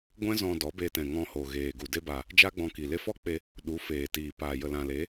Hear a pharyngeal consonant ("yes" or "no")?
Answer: no